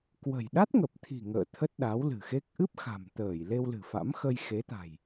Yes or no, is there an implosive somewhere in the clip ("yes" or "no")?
yes